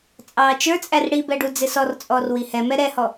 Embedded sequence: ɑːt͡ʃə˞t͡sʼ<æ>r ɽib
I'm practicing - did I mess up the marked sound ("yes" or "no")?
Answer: no